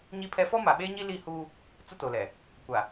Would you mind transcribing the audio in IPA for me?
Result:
ɲ i˦ pʰ ɛ˦ f ɔ˦ m a˨ ɓ eː˦ ɲ i˦ l i˦˨ h uː˦ | t͡s ʊ˦ t o˨ l ɛ˨ | kʷ a˨

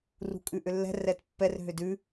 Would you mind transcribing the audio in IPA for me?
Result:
r ṳ kʼ ʉ ʔ ʏ lː ɛ̤ r ɛ t pː ɛ r ɦ ʏ d ʉ

